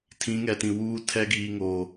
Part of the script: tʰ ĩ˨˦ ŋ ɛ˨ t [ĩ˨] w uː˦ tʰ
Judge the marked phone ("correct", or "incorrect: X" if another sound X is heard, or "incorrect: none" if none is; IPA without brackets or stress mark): correct